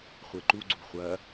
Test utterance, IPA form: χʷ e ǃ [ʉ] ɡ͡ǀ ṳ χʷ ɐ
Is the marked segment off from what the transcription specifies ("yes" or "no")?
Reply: yes